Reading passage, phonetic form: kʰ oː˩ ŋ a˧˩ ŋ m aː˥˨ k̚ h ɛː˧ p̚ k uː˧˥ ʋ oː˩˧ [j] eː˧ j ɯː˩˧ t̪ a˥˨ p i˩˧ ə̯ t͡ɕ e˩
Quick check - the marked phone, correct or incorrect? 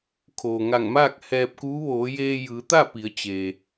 correct